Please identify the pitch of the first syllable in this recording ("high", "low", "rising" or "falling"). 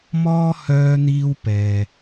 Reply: high